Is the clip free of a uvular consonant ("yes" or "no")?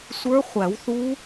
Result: no